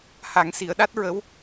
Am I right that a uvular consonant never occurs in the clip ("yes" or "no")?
yes